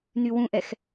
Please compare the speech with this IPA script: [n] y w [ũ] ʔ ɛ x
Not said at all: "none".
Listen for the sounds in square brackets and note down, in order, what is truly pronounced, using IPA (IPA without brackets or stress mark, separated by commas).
n, ũ